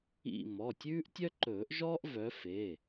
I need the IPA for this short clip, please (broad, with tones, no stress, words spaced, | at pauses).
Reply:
ḭ˥˧ mɔ˩˧˩tʲʉː˥ʔtʲœ˥ǃɵː˨˩˦ʔ ʒɔː˥ʔvœ˨˦fe˩˧˩